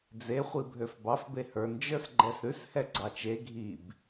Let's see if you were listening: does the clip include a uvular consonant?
yes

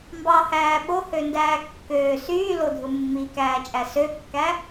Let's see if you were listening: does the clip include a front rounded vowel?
yes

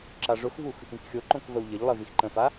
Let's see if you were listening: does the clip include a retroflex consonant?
yes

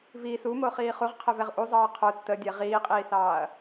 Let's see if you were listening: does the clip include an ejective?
yes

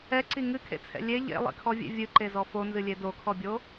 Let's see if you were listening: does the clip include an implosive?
no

